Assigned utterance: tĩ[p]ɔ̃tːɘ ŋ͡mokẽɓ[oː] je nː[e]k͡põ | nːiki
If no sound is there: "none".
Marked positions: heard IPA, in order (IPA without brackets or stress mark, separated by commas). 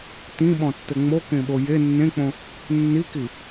ɓ, o, ẽ